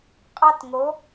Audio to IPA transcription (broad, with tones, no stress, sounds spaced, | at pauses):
qʼ ɑ˦ t ŋ o˨˦